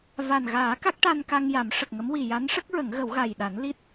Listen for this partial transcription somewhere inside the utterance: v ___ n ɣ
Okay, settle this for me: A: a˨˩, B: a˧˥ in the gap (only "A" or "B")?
A